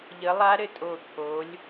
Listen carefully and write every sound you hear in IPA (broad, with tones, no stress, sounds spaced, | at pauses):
ʎ ə˨˦ lˠ a˦˥ ɾ ɘ˧˩ tʼ o˧˩ t̪ʰ o˨˦ lʲ